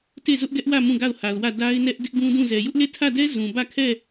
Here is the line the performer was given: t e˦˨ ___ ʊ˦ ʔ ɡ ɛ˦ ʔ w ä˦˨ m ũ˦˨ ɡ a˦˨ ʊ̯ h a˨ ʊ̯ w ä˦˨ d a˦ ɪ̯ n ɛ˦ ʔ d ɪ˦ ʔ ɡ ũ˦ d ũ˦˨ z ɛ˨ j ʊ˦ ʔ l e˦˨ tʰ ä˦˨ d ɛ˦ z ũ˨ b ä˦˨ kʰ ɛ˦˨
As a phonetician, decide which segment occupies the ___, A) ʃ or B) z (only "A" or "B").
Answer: B